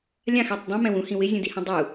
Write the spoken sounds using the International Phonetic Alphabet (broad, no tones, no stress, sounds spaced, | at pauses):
lʲ ã x ɛ tˤ dˤ ũ m ɛ̃ w ũ h ĩ w ɪ zʲ ũ d i h ĩ dˤ u